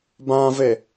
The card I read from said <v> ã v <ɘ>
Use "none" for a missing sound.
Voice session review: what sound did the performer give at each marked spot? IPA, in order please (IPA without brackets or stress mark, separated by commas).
b, e